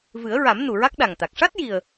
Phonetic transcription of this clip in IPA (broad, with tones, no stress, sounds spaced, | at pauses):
v ɨ˨˩˦ ə̯ ɹ a˨˩˦ m n u˨˩ ɹ a˦˥ k̚ ɗ a˨˩ ŋ t̪ a˨˩ k̚ ʂ a˦˥ t̚ j i˨˩ ə̯